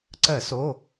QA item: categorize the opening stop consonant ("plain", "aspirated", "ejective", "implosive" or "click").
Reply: click